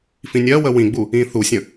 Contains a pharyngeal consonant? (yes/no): no